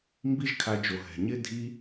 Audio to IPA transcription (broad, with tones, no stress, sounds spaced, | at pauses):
m b i˦ ʒ kʰ a˧ d͡ʒ o˨ ɦ ɛ̤˨ ɲ ɪ˦ dʱ i˦